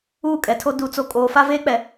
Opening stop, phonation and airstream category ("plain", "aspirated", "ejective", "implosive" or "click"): ejective